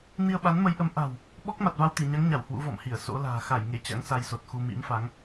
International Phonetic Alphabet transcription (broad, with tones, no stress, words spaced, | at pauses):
ni˧ə̯ɓa˨˦nmə˨˦jʔə˨˦m ʔa̤˨˩w | ɓɔ˦˥k̚ ma˨˩t̚va˧wt̪i˧˩ɲa˨˦ŋ ɲa˧˩w hwṵ˧˥vɔ̰˧˨mhi˧˩ə̯ so̰˧˥la̤ː˨˩ xa˧˩jŋe˧˩ t͡ɕa̰˧˥ŋsa˧jso˨˩t̚xu˧ mḭ˧˥mfa˨˦ŋ